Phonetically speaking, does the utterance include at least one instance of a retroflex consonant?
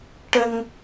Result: yes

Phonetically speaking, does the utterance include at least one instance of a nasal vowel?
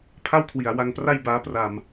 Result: no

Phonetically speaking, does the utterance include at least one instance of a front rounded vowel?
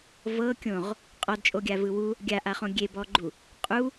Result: no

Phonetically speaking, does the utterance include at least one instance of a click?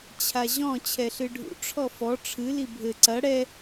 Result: yes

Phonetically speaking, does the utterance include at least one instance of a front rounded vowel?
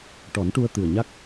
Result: no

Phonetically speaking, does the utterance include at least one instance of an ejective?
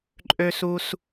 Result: yes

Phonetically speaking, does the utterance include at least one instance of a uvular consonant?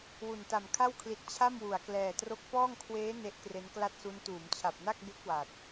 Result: no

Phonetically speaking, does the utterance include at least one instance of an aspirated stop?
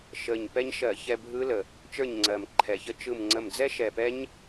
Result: yes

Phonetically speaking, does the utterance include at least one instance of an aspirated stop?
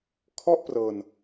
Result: yes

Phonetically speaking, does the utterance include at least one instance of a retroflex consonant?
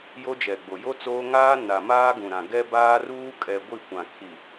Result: no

